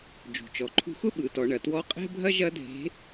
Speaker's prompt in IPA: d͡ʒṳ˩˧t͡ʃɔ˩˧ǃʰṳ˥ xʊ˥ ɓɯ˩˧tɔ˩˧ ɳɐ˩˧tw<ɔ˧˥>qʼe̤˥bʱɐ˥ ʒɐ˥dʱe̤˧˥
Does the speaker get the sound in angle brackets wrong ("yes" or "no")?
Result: no